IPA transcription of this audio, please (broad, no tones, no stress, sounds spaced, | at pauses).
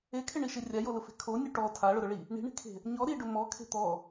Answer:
e kʰ ɪ ɳ i ʃ e rʲ a j o l ʊ f e̤ kʰ o nʲ u ʈ ɔ tʰ a ɭ ʊ ɾ ʊ ɭ i | ɳ i̤ ɳ i̤ kʰ e̤ | ɲ ɔ ɾ i ɖ ʊ m ɔ kʰ e̤ t̪ ɔ